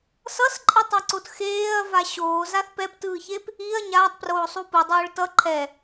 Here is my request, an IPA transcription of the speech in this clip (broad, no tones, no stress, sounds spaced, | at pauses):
s ʌ s ǃʼ i tˤ a ǀ o t x eː ɐ̯ v a ɕ oː z a θ p ɛ p t ɯː ç e p | i ɐ̯ ɲ aː tˤ p r oː sˤ u p ɯ dˤ oː ɭ t ʌ ǃʰ ɛ